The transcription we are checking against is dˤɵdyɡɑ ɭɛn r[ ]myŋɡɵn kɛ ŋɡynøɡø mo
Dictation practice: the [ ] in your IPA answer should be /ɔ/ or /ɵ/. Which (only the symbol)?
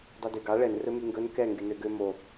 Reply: ɵ